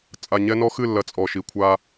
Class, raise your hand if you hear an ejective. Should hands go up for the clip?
yes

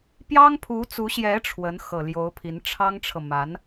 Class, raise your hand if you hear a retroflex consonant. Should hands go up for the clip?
yes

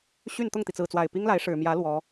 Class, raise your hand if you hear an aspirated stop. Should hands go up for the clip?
no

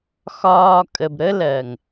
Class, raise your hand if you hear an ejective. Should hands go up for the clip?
yes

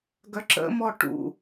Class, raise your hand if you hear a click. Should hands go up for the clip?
yes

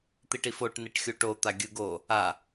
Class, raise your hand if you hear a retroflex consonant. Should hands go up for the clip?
yes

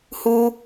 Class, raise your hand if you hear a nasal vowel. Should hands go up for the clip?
no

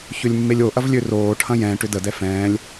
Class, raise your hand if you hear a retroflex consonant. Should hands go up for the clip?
yes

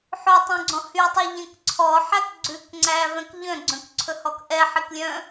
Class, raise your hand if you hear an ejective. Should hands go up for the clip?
no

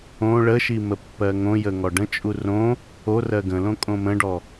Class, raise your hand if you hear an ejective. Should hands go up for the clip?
yes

